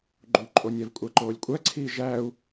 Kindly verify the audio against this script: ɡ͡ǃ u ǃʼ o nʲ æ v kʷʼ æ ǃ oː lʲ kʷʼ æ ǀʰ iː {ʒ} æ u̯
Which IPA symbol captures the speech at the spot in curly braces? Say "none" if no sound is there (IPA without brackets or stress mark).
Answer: ʒ